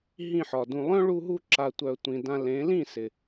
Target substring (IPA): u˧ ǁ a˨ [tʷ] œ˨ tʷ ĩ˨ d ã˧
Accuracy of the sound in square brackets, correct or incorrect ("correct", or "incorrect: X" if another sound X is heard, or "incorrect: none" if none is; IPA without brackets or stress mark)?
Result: correct